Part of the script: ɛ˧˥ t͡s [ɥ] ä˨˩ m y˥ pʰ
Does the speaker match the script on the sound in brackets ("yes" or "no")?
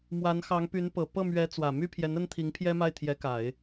no